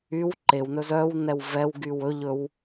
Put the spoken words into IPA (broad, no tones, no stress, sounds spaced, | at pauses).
y w ǃ e w n ɵ z œ w n ɛ w v ɛ w ɡ y w ɵ ʎ ɵ w